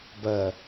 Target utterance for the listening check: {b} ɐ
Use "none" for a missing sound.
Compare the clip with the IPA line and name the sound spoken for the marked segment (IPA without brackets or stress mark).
b